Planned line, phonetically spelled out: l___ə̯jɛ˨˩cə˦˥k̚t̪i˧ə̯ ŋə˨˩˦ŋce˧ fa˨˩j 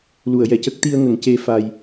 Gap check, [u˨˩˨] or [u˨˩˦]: u˨˩˨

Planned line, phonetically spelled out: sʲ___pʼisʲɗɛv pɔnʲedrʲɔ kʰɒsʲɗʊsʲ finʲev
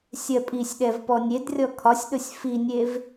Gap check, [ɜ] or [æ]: ɜ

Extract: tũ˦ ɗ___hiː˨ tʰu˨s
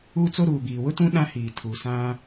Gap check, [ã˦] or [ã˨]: ã˦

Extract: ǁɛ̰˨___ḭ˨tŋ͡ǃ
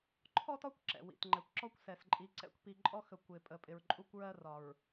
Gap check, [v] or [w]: w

